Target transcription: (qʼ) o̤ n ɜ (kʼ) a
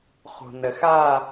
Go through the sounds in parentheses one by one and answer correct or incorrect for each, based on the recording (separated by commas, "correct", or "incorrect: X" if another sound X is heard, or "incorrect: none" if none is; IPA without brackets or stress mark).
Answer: incorrect: χ, incorrect: x